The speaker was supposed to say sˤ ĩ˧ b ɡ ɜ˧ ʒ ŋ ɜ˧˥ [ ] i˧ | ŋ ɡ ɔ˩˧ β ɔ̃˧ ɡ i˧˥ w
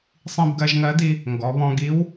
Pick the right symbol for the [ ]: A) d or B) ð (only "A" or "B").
A